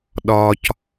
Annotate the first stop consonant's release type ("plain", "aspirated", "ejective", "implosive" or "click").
implosive